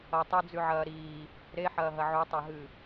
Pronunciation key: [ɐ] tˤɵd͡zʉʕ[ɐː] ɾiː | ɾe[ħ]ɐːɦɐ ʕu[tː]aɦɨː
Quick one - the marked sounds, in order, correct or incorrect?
correct, correct, correct, incorrect

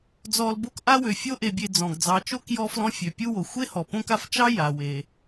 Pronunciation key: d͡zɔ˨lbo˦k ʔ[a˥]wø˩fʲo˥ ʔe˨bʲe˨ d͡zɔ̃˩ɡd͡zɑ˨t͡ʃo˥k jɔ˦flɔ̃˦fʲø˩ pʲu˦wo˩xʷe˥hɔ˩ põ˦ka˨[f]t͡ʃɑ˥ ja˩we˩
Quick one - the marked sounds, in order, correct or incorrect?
correct, correct

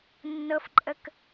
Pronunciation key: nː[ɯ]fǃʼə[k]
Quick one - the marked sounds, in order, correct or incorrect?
incorrect, correct

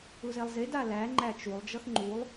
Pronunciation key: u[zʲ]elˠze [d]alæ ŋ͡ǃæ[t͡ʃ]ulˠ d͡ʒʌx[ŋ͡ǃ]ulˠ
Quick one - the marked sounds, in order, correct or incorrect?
incorrect, correct, correct, correct

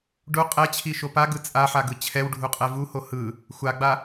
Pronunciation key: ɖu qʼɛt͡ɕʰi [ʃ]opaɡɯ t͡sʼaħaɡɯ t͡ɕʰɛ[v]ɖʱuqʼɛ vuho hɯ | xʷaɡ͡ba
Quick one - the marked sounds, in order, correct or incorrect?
correct, incorrect

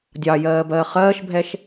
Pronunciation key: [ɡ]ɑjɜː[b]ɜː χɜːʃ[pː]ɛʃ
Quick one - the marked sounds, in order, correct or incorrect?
incorrect, correct, incorrect

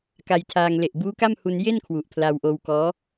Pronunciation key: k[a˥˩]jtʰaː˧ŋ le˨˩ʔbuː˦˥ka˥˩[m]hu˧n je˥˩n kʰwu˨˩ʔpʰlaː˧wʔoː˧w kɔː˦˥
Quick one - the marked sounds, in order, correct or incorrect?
incorrect, correct

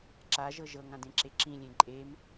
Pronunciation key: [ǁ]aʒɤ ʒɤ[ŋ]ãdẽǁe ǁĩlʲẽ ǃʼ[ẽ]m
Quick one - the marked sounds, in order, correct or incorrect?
correct, correct, incorrect

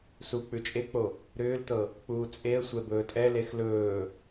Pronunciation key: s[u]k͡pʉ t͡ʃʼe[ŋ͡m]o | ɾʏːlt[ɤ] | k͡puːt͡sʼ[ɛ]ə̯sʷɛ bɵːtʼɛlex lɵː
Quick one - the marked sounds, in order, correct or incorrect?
correct, incorrect, correct, incorrect

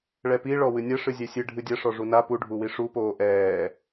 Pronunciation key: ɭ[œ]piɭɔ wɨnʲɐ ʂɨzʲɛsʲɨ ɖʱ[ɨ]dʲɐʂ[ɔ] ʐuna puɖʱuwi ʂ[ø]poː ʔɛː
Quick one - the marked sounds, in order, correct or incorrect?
incorrect, correct, correct, incorrect

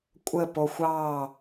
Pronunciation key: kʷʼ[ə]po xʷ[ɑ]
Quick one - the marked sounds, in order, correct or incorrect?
correct, correct

